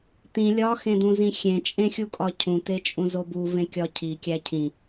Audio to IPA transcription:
t̪ ĩ lʲ ɒ x ẽ d̪ ũ z ĩ xʲ ẽ t͡ʃʼ ẽ xʲ u kʼ ɒ cʰ ũ t̪ e t͡ʃʼ ũ z o b u v ẽ kʲ ɒ cʰ i kʲ æ cʰ ĩ

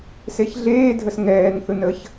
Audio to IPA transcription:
s e ç ɮ eː dʱ ə s ŋ ɛː n θ ɯ n ə ç

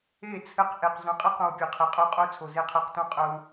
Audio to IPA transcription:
e˦˨ t͡sʰ ɘ˧ q ʔ e˨ q z œ̃˨˦ qʼ ɘ˦ q õ˧ w pʲ œ˨ qʰ e˨˦ qʼ o˧ qʼ o˦ t͡sʰ o˨ z e˧ qʰ ɛ˧ q t õ˦ qʼ œ˦ w

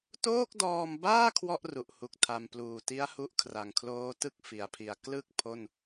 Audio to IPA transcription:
t oː˥˩ k̚ d ɔː˧ m b aː˥˩ kʰ w ɔ˥˩ ʔ r u˨˩ ʔ h u˨˩ k̚ tʰ a˧ m p l uː˨˩ t i˦˥ a̯ h u˦˥ ʔ kʰ r a˨˩ ŋ kʰ l oː˦˥ t ɯ˥˩ k̚ f i˩˦ a̯ pʰ i˨˩ a̯ k l ɯ˥˩ k̚ pʰ o˥˩ n

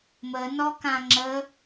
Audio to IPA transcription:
m ə n ɔ k ã ŋ͡ǁ ə

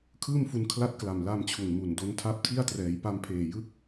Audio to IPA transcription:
kʰ ɯː˥˩ m f u˧ n kʰ l a˦˥ t̚ k l a˨˩ m l a˧ m t͡ɕʰ u˨˩ n m u˨˩ n d o˧ n tʰ a˦˥ p̚ tʰ i˥˩ a̯ t r ɛː˩˦ j p a˧ m pʰ eː˨˩ j ɯ˦˥ k̚

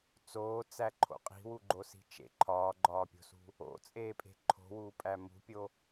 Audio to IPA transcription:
t͡s oː t͡s æ ǃʰ o̰ qʼ i̤ w u ɡ͡ǃ o s i̤ t͡ʃ ḛ ǃʰ ɒː ɡ͡ǃ ɒː pʲ o̤ s ṳ | o̰ t͡sʼ eː pʼ e̤ ǃʰ o̤ w uː pʼ æ m ṳ pʲ o

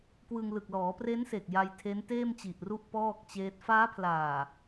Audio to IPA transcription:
k w ɯ˧ ŋ l ɯ˨˩ k̚ l ɔː˩˦ p r e˦˥ n s e˨˩ k̚ j a˧ j tʰ e˦˥ n t eː˥˩ m t͡ɕ i˨˩ ʔ r u˥˩ ʔ p ɔː˥˩ k̚ t͡ɕ eː˦˥ t̚ f aː˦˥ pʰ l aː˨˩

